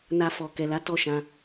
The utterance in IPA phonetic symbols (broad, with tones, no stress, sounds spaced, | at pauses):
n a˧ f ɔ˨ k ɛ˨ l a˨˦ t ɔ˦˨ ʃ ã˧